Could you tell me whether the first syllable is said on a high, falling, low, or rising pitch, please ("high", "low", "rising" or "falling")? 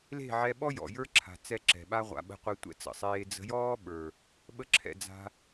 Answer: falling